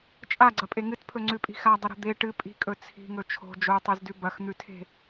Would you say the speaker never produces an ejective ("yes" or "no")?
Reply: no